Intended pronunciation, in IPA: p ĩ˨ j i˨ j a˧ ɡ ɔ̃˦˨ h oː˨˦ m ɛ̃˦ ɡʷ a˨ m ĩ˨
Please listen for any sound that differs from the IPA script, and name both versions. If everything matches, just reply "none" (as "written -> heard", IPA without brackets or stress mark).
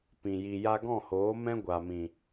none